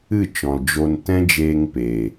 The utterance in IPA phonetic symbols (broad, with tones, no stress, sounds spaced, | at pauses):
ɨ˦˨ t͡ʃ ɔ̃˨ l d͡ʒ o˧ n t ɛ̃˦ d͡ʒ eː˧ ŋ p eː˨